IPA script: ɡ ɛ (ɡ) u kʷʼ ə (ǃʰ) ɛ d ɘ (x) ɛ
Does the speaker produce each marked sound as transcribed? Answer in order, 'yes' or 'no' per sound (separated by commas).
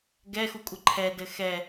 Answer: no, yes, yes